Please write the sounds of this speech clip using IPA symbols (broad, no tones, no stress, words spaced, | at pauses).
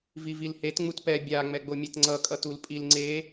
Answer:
vivilhet ŋ͡mutpɛ bʲa ŋ͡mɛɡ͡bomʲetŋ͡ǀʌ kʼʌtul pʼil ŋ͡ǀe